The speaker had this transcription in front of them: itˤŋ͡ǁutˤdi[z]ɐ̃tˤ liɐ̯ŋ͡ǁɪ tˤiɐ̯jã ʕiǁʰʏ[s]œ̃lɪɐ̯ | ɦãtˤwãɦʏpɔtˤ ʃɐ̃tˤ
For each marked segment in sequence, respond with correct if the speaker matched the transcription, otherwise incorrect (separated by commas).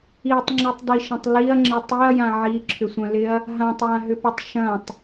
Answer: incorrect, incorrect